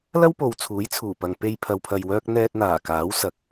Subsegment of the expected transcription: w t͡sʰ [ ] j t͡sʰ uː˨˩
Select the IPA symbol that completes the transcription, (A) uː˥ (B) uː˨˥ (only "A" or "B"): B